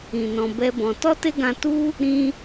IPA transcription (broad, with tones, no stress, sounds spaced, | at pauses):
ĩ˨ n ɔ̃˧ b ɛ˦ b ɔ̃˧ t ɔ˦ t e˦ ɡ ã˧ t u˦ | ɾ ĩ˧